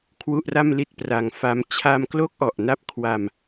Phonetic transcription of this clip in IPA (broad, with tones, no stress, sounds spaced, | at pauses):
kʰ w u˥˩ ʔ r a˥˩ m l i˥˩ t̚ p r a˧ ŋ f a˦˥ m t͡ɕʰ a˧ m k l o˦˥ k̚ ʔ ɔ˨˩ ʔ n a˦˥ p̚ kʰ w a˧ m